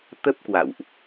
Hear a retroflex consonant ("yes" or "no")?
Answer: no